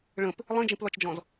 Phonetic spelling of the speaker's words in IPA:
ɭə̃p | lˠĩd͡ʒĩplɒt͡ʃd͡ʒɔ̃z

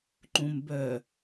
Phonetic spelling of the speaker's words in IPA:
ǃũm bœ

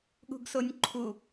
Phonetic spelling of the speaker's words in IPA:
ɠṳɡsonʲǃʰu

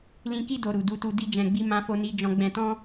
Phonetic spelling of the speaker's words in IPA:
lĩ˧ki˦ do˧ɾu˨ du˧tu˧ di˦d͡ʒɛ̃˧ɡ͡bi˦ mã˦fo˦ni˦ d͡ʒɔ̃˧ɡ͡bɛ̃˧tɔ̃˦

